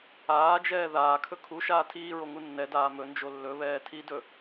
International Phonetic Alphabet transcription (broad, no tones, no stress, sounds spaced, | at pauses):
aː d͡ʒ ɛː ð aː kʰ ɵ kʰ u ʃ aː tʰ iː ɹ o ŋ u nː ɛ d aː m ɵ n d͡ʒ o lː ɵ β ɛː tʰ i d ɵ